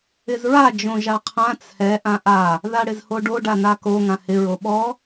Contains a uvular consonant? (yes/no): yes